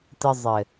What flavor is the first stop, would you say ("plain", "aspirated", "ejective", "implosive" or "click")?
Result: plain